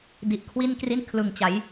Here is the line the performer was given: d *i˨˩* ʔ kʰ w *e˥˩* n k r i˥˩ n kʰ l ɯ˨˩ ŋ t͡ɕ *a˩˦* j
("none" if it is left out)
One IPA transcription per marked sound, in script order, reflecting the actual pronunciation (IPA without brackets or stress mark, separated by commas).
i˨˩, i˥˩, a˩˦